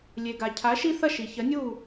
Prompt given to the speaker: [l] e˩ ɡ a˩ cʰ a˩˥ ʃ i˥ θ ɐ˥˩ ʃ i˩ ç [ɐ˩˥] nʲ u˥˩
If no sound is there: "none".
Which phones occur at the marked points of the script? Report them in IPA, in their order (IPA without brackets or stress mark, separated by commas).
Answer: lʲ, ɐ˩˥